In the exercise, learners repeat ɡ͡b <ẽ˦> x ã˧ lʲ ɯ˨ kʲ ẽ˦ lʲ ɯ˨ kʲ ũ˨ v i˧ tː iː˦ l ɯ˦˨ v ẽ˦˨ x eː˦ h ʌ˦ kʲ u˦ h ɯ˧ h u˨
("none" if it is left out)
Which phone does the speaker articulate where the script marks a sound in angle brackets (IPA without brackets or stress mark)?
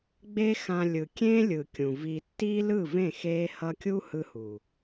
e˦